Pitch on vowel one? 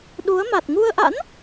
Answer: rising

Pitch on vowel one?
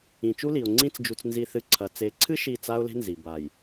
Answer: low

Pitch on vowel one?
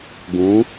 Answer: rising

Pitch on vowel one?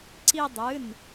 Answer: high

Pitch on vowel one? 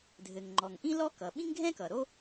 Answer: low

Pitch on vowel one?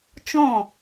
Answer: falling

